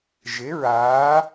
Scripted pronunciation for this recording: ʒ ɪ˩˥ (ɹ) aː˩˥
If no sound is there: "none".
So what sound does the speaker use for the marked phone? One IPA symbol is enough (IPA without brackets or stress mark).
ɹ